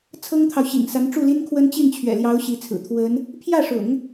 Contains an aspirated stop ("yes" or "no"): yes